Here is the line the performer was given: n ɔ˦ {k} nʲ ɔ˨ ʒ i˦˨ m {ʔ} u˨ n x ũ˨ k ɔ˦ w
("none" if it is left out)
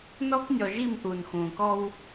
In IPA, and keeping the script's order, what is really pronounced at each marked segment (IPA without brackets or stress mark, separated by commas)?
k, ʔ